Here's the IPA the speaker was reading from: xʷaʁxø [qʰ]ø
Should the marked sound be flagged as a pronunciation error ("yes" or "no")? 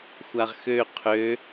no